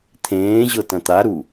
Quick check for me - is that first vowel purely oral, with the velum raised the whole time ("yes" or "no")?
no